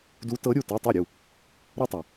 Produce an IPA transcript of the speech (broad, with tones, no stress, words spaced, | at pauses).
du˧˥tɤ˧˥ ɾʲu˥˩tɤ˧˥˧tˤu˥˩ ɾʲu˥˩ | ɾɤ˥tˤa˨